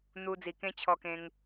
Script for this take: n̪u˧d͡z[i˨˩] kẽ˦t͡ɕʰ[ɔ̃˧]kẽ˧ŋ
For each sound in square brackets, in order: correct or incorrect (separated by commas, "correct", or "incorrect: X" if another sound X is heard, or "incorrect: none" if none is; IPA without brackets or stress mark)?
correct, incorrect: ɔ˧